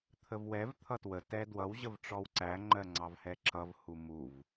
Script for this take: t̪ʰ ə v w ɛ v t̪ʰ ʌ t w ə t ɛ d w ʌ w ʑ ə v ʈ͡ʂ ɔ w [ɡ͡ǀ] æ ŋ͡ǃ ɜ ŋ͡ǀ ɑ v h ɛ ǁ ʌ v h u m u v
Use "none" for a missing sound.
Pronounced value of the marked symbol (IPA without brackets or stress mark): ǀ